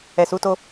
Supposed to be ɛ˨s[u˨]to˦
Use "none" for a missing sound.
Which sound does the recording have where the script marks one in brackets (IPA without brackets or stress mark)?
u˨˦